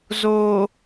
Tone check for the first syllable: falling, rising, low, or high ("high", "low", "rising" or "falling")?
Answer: low